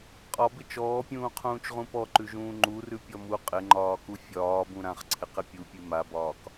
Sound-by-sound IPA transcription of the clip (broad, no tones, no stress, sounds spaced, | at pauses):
qʼ ɒ b ɪ t͡ʃ ɔː pʲ ũː qʰ ũː t͡ʃ ʁ ũ p ɔ ǃ ʉ ʒ ũː ŋ͡ǃ u r ʉ pʲ ɔ m u qʼ ɪ ŋ͡ǃ ɒː k u fʲ ɒː b ũ ɾ ã χ ǀʰ ɪ q ɪ pʲ u pʲ ʉ m a b ɒː k